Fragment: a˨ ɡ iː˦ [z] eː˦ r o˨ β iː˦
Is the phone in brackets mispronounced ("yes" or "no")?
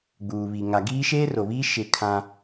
yes